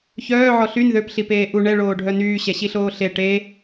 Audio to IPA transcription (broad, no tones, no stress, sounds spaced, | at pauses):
ç œː ʕ ɔ ɬ y n ð ø p ɬ i p eː ʔ u ɳ ɛ ɭ oː ɖʱ œ n yː ɕ ɛ ɕ i ɬ oː ɬ e ʈ e